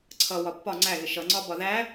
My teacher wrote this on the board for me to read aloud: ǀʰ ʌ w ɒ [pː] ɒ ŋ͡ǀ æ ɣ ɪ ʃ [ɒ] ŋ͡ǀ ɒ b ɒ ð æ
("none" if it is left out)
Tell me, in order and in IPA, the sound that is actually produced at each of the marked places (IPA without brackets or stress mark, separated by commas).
pː, ʌ